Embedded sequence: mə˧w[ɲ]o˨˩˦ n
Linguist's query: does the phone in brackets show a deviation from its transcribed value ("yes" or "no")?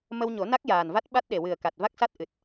no